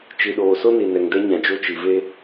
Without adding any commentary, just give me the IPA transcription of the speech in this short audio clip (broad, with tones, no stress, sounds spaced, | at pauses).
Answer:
t͡ʃ i˨ ɗ oː˨ s o˦ n i˨ n ɛ˨ ŋ d ɛ˦ ɲ ã˨ d͡ʒ o˦ t͡ʃ i˨ v e˦